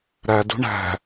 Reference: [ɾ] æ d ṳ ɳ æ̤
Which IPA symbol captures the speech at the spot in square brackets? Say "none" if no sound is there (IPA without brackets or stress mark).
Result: ɾ